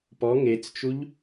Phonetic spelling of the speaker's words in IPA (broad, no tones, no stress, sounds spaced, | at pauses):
p ɔ ŋ e t͡s t͡ʃ u ʎ